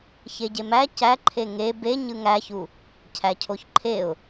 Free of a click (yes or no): no